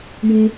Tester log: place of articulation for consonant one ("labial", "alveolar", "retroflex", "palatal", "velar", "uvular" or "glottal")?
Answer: palatal